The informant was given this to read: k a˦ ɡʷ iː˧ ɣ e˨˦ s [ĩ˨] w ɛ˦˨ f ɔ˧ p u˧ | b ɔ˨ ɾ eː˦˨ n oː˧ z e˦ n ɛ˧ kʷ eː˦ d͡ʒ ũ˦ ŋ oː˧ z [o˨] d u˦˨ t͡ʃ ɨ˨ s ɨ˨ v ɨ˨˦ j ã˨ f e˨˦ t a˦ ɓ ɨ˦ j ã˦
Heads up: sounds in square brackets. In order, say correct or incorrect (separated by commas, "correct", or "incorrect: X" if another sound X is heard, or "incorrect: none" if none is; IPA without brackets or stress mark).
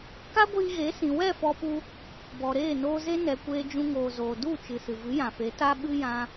correct, incorrect: oː˨